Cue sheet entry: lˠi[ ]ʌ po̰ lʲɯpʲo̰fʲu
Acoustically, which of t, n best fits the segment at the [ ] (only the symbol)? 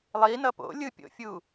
n